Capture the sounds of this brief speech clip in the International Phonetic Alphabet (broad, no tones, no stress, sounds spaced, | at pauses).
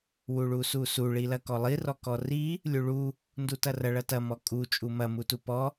w u ɭ u s u s u ɭ i l ɐ k ɔ lˠ i r ɔ k ɔ r i | lʲ u ɭ u | n d u t ɐ r ɐ ɭ ɐ t ɐ m ɔ kʼ u t͡ʃʼ u m ɐ m u t u p ɔ